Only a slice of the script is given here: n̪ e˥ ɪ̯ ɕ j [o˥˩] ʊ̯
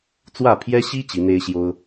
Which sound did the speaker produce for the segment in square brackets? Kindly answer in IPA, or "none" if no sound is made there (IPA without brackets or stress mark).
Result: o˥